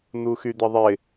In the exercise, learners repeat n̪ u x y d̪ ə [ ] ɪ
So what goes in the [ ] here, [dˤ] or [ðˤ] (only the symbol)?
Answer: ðˤ